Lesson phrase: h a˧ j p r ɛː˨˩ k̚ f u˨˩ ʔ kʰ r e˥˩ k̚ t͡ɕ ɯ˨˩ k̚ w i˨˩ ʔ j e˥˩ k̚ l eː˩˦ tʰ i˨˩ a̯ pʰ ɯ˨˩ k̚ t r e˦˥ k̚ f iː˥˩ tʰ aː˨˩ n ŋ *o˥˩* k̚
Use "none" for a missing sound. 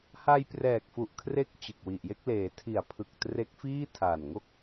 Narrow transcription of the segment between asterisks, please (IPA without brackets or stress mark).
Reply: o˥˩